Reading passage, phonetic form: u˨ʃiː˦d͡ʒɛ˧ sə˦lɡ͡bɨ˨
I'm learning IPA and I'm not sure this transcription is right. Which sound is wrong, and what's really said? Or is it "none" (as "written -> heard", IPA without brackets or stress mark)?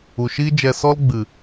ə˦ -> ɔ˦